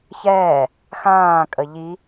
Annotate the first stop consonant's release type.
ejective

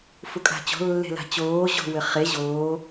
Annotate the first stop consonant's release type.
ejective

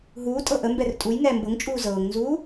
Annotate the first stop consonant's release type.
ejective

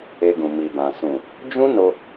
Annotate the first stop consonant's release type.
plain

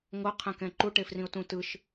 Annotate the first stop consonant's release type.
aspirated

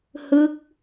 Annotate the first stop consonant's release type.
plain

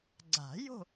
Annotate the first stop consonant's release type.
click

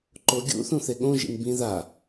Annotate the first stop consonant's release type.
click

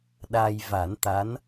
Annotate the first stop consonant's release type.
implosive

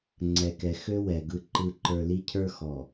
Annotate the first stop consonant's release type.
click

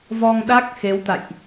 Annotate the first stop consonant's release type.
implosive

